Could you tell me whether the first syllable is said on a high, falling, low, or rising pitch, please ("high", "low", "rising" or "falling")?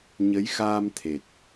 rising